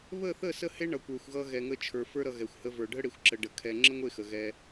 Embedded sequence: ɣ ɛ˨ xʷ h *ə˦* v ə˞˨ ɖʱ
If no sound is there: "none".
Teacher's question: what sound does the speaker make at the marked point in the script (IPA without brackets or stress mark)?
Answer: ə˧